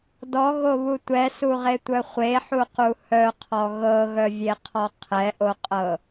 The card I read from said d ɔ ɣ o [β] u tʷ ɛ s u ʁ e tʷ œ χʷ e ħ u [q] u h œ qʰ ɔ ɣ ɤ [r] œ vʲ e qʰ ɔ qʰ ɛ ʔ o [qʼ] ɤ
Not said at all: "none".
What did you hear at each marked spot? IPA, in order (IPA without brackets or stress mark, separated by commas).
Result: β, q, ɣ, qʼ